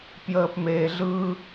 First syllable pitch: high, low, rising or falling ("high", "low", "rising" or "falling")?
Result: low